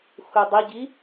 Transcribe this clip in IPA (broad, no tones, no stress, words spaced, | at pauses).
xudˤiɟi